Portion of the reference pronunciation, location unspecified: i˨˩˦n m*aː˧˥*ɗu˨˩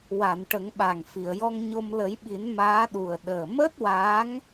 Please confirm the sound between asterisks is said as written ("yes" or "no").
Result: yes